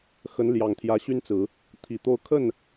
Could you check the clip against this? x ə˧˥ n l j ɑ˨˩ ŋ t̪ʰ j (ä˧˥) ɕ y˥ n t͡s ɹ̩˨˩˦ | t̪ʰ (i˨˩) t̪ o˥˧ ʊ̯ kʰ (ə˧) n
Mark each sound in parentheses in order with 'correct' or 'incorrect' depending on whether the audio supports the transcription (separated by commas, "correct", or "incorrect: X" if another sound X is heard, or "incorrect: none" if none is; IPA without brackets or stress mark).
correct, correct, incorrect: ə˥˩